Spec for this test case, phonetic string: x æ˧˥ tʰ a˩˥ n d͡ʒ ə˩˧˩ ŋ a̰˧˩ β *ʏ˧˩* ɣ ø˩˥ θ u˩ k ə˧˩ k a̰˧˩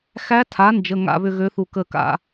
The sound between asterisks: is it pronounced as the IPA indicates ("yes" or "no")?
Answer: yes